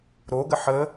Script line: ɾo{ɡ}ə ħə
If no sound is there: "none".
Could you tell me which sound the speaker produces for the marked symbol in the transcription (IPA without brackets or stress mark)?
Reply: ɡ